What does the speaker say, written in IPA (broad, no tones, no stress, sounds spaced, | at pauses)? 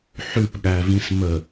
ħ ʉ p ɠ æ v ĩ s m ə